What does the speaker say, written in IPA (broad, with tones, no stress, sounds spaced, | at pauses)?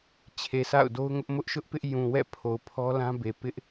t͡ɕʰ e˨ s a̰˦˨ ʊ̯ d o˦ ʊ̯ ŋ ʊ˦ ʔ m ʊ˦ ʔ ʃ ʊ˦ ʔ p ɪ˦ ʔ j ũ˨ w ɛ̰˦˨ pʰ o˨ ʊ̯ pʰ ɔ˦ l ã˦ b e˨ p ɪ˦ ʔ